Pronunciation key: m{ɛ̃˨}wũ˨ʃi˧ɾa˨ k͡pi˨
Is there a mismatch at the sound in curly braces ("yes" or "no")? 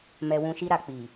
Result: yes